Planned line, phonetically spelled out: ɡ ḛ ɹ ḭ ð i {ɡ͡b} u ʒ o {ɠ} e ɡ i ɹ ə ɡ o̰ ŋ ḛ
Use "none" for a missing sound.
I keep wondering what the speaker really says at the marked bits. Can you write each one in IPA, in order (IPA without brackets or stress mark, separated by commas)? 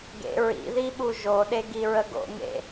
ɓ, ɗ